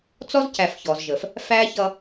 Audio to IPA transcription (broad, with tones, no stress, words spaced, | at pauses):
t͡sɔ˦zcæ˨f çɔ˨zʒə˨f | fæ˦ çʌ˧